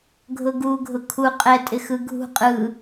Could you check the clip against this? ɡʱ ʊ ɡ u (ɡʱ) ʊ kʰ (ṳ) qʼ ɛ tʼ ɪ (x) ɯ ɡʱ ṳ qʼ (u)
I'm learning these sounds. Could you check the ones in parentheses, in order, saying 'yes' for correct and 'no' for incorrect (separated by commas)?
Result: yes, no, yes, no